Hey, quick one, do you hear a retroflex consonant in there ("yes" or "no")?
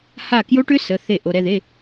yes